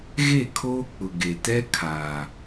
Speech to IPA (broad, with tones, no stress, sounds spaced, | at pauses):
ɣ e˦˨ kʰ oː˦ k͡p ʊ˨ ɡ e˨ t ɛ˦ kʰ aː˨